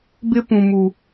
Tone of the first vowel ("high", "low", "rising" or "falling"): high